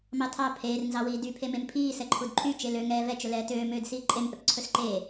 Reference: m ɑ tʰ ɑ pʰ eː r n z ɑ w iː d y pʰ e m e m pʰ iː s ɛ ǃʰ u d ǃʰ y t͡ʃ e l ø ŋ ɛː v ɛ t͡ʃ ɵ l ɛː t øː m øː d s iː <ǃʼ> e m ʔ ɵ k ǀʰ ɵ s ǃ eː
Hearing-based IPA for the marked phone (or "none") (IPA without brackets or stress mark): ǃʼ